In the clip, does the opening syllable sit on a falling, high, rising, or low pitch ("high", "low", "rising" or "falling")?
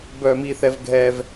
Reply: low